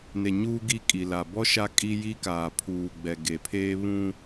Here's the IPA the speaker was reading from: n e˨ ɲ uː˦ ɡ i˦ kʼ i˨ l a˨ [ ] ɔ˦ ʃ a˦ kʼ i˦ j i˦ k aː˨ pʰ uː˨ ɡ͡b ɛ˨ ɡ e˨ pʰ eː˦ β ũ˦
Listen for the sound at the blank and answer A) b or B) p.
A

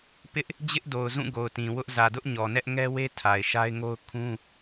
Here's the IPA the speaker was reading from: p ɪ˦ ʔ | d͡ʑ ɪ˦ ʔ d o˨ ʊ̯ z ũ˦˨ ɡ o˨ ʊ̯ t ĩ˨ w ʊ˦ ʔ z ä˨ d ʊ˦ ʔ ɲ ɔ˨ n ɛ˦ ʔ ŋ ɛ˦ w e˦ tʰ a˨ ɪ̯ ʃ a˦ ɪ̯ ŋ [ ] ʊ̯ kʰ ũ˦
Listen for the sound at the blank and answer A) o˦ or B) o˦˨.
A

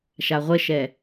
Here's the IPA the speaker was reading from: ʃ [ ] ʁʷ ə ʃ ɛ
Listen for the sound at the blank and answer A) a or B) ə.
A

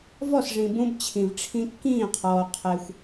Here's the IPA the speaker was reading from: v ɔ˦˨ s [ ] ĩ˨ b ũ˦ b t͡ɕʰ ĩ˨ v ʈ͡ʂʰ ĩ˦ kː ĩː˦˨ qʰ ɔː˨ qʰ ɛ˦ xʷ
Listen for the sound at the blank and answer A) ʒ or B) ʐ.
B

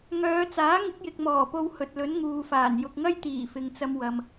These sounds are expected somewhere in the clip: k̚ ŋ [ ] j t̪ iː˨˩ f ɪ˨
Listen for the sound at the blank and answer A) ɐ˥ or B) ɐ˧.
A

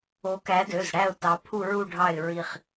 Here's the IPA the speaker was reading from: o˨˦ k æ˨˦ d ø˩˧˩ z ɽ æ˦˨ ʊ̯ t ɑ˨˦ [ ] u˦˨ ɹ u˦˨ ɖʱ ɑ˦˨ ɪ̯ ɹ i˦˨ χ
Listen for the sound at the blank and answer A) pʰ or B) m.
A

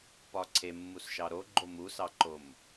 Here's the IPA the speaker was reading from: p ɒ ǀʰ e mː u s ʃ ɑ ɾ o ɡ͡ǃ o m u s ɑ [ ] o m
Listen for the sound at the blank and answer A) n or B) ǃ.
B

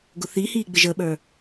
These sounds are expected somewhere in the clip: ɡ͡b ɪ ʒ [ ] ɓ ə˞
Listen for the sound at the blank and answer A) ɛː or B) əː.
B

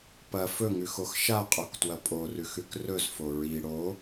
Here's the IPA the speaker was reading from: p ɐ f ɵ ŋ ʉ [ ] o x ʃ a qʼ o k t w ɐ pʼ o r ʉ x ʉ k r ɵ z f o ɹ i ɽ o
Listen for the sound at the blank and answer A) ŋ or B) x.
B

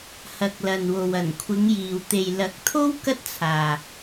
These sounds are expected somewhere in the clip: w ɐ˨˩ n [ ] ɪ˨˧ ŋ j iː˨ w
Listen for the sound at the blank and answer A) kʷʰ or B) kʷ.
A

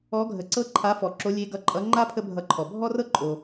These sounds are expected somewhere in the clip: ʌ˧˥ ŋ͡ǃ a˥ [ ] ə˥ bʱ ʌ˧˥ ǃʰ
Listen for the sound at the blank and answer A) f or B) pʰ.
B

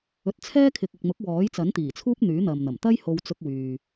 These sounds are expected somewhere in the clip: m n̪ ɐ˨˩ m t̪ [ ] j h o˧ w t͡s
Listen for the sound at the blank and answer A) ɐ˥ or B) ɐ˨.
A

